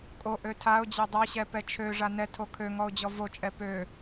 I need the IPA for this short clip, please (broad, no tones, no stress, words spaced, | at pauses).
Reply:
kʼoʔø tʰaʊ̯d͡ʑɛ dˤaɕɛpɛ t͡ʃʰøʐa nɛtʰo kʰøŋɔʊ̯d͡ʑɔ vot͡ʃʼɛ pø